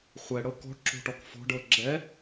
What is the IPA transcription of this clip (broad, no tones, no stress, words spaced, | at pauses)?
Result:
χʷɛɽɤ kɔ̤ʈǁo̤ʈɔk fɔ̤ɖɤ ɡ͡ǁɛ